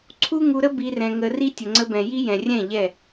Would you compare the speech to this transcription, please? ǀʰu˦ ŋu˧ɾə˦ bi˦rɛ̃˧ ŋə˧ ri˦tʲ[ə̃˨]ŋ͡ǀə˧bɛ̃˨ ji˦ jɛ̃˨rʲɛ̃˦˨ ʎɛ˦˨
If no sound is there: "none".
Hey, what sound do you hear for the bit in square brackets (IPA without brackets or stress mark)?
ə˨